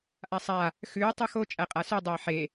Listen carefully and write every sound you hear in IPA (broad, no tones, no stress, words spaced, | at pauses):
ʔasˤa | xʉː tˤʉxo t͡ʃʼæqʼasʉ dˤɛɪ̯ħe